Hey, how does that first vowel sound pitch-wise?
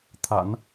low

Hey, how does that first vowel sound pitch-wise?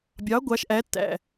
rising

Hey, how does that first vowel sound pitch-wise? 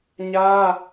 high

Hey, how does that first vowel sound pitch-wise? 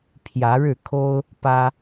rising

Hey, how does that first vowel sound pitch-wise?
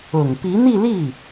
low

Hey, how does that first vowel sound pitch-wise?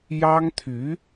high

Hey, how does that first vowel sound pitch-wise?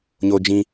high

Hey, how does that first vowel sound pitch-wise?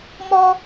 high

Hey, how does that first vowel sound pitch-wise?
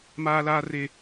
high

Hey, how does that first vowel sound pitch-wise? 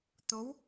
rising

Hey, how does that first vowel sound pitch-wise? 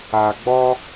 low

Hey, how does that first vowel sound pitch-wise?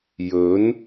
rising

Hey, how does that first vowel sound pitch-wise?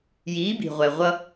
rising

